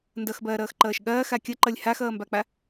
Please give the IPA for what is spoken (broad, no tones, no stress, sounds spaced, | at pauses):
n d ʌ x b ɐː ɾ ʌː x ǃ ʌː ʃ ɠ ɐː x a kʲ ʌ ǃ ʌ lʲ h a x ʌː m b a k͡p a